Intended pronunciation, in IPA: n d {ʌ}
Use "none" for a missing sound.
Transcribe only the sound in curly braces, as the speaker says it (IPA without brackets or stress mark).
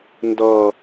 ʌ